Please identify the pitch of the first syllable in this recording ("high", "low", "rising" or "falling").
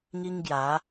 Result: high